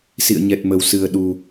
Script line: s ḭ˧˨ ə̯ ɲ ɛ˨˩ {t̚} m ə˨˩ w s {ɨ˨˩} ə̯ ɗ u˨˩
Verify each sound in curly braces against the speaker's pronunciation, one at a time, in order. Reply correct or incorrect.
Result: correct, correct

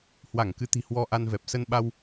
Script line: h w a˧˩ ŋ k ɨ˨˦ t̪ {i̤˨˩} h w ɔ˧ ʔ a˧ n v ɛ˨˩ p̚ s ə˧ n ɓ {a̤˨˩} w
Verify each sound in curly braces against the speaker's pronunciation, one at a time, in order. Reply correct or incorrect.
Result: correct, incorrect

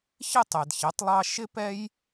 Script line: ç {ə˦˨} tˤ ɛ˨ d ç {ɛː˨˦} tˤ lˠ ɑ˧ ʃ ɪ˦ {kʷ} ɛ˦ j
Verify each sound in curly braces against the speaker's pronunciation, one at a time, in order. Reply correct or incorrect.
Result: incorrect, incorrect, incorrect

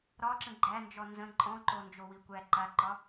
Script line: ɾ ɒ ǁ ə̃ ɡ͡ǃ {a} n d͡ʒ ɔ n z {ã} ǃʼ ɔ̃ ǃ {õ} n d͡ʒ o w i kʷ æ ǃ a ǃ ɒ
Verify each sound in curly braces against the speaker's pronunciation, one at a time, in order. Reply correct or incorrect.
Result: incorrect, incorrect, incorrect

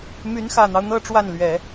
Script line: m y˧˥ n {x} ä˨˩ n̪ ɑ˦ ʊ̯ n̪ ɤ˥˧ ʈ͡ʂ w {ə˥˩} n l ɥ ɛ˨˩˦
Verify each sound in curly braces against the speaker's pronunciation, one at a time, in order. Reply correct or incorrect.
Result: correct, incorrect

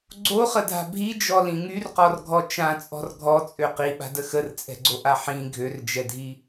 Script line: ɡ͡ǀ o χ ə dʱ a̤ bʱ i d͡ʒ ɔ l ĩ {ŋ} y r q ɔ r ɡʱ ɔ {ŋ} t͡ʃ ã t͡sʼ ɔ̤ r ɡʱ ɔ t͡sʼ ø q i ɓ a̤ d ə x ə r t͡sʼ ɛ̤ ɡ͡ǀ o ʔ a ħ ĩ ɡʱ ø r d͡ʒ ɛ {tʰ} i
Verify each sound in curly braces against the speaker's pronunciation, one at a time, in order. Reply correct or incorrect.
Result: correct, incorrect, incorrect

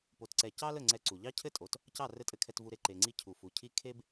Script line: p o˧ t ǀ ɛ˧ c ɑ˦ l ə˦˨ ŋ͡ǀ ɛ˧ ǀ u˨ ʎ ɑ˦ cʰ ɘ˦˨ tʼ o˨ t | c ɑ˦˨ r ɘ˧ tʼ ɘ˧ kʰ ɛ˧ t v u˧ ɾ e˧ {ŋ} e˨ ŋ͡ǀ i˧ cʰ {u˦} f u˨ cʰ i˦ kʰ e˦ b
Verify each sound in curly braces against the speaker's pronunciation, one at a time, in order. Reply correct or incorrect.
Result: incorrect, incorrect

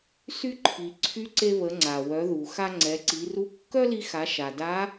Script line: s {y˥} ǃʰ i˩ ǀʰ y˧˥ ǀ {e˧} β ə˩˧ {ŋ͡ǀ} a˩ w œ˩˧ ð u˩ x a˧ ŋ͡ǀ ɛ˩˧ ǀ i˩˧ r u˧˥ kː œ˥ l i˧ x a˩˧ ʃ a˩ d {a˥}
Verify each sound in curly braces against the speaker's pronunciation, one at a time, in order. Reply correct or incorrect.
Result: correct, correct, correct, incorrect

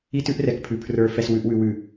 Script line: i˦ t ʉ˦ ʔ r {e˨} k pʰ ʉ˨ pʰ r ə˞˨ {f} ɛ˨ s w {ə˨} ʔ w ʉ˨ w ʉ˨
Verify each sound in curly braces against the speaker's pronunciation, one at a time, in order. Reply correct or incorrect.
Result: incorrect, correct, incorrect

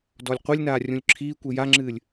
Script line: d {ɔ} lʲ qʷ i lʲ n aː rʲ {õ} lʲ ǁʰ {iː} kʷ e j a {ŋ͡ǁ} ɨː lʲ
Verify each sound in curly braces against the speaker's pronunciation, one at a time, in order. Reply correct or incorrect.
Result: correct, incorrect, correct, correct

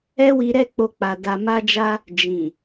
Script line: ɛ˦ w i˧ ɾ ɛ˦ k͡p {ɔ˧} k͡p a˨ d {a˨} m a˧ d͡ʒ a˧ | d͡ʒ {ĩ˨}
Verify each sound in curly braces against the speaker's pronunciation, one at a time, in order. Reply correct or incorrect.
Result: incorrect, correct, correct

